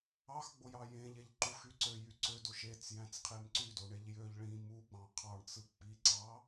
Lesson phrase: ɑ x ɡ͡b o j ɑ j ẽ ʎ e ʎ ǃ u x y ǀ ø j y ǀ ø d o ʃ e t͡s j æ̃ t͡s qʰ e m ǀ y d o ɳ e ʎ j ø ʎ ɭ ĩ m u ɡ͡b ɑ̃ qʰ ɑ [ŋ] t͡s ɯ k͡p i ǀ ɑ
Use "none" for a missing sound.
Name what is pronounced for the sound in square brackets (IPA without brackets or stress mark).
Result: ɳ